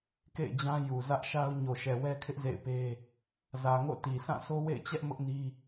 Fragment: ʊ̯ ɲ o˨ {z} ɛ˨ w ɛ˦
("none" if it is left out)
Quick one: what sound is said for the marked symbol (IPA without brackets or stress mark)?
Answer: ʃ